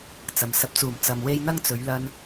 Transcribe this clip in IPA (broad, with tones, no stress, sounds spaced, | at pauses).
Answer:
t͡s ɐ˨ m s ɐ˨˥ p̚ t͡s uː˨˩ m t͡s ɐ˨ m w e˧ j n̪ ɐ˥ ŋ t͡s ɵ˨˧ ɥ l ɐ˧ n